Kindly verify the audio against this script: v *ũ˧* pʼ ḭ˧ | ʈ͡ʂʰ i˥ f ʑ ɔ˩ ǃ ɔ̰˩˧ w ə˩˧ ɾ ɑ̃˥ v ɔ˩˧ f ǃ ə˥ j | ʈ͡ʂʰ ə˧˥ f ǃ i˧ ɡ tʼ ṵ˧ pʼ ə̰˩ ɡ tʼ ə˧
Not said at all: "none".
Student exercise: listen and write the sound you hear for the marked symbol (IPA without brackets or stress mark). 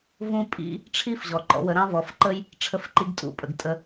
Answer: ũ˧